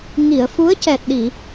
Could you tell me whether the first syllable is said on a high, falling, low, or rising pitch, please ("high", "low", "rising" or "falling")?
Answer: low